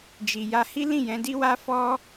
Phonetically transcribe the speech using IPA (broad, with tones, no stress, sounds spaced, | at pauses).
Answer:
d͡ʒ i˨ j a˧ h i˦ l ĩ˦˨ j ɛ̃˨˦ d i˦ w a˦ f ɔ˦